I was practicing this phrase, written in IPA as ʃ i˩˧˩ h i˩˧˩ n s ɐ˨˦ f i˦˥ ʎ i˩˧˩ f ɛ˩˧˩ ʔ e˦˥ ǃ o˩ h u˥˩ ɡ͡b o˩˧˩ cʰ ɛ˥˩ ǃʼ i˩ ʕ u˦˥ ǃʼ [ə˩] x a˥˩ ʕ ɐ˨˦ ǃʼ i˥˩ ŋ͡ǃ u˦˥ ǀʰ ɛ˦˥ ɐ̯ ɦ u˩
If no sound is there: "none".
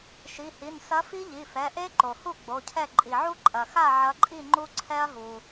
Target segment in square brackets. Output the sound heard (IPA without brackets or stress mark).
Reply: ɐ˩